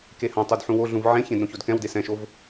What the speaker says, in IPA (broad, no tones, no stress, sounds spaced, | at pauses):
k e h ɐ̃ tˤ u d ħ ũ w o ɮ ũ v ʕ ẽ ç ẽ d ɾ õ ç o d k ɛ̃ w d e s ɛ̃ ʃ o v